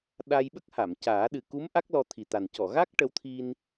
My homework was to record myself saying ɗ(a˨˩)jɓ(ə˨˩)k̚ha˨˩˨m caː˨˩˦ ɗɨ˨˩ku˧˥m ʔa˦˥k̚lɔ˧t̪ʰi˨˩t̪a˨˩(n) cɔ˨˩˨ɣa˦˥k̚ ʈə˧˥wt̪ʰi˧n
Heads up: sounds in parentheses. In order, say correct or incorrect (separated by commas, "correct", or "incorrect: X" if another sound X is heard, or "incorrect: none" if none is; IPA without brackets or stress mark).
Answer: incorrect: a˧, incorrect: ə˦˥, correct